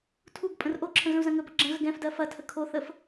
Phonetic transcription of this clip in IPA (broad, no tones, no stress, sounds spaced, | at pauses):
tʰ u ɡ pʼ ə̃ r ʔ o ǁʰ ə̃ ɣ ə̃ u̯ z ɐ̃ ŋ ɵ b ɐ ɡ͡ǁ ə̃ ɣ ə ɡ ɛ̃ f d ɜ f ɐ tʰ ə kʰ o θ ə f